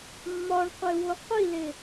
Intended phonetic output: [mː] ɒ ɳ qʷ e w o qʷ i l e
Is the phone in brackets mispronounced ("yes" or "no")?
no